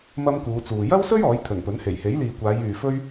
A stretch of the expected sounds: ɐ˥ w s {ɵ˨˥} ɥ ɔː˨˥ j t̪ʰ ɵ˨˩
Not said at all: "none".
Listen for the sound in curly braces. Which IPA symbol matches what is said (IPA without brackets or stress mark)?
ɵ˥